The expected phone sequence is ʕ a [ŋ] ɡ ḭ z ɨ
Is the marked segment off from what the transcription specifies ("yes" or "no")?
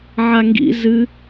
no